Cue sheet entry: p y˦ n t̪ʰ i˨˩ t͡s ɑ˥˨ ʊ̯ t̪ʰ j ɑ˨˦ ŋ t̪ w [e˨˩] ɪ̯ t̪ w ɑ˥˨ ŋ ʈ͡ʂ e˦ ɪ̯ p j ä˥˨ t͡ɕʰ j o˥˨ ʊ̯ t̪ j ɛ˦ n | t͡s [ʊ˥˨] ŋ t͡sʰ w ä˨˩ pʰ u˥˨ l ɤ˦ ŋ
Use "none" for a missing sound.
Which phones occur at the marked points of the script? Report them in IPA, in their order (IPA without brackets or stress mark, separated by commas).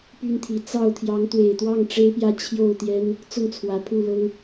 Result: e˨˩, ʊ˥˨